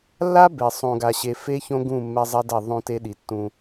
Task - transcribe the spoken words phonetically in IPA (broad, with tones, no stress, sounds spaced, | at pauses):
lː a˦ b e˨ sˤ õ˨ ɡ a˨ ɕ e˨ f e˦ ç õ˦ ɡ ũ˦˨ mː ɛ˦ zˤ ɛ˦ d ɛ˦˨ ðˤ õ˦ t e˦ ɗ i˨ tː ũ˦